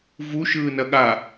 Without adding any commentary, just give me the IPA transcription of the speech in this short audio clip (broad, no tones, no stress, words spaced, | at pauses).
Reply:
vu ʃɯːnɐɠa